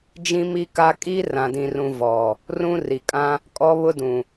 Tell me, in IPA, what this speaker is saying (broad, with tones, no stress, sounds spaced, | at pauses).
d͡ʒ ĩ˦ m i˦ k a˦ kʼ iː˦ r ã˨ d ĩ˨ r ũ˨ v ɔ˨ | r ũ˦ r i˨ kʼ ã˦ | kʼ ɔ˦ β ʊ˦ d ũ˨